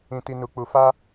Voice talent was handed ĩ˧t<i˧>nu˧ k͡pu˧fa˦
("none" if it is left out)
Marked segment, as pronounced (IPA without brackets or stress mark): i˧